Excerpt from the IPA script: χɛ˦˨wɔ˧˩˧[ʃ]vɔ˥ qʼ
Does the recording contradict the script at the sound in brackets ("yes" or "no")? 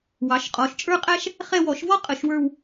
no